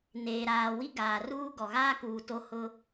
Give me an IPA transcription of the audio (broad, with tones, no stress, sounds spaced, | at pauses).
n eː˨ ɾ aː˨ w i˦ ɡ aː˨ r uː˦ ɡ ɔ˨ ɣ aː˦ k uː˨ t o˦ h ʊ˦